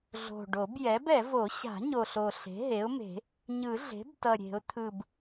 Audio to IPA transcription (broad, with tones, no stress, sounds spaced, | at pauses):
ɮ o̤˨˩ ɖ o˨˩˦ b j ɛ˩˥ b ɛ˨˩˦ v o˨˩˦ ɕ a̤˨˩˦ ɲ o˨˩ ɬ o˨˩ ɬ e̤˩˥ ɦ e˩˥ ʊ̯ m e̤˨˩˦ | ɲ ɯ˨˩˦ ɮ e̤˩˥ b t ʌ˨˩ ɾʲ e̤˨˩˦ ʊ̯ t̪ʰ ɯ˨˩ b